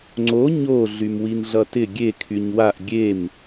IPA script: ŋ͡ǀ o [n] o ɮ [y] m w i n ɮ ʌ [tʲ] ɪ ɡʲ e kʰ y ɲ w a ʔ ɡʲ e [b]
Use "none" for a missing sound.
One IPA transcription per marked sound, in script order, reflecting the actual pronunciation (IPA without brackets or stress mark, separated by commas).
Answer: ɲ, y, t, m